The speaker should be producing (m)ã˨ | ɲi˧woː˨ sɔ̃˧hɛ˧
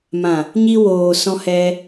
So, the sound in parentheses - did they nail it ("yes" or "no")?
yes